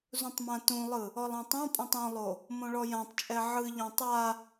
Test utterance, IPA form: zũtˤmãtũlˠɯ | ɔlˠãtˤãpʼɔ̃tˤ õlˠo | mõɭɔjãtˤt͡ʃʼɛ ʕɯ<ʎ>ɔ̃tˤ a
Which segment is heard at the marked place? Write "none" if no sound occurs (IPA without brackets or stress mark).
ʎ